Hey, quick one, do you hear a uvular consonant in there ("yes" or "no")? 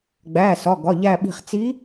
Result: yes